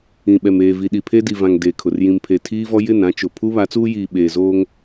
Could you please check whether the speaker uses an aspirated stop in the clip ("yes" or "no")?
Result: yes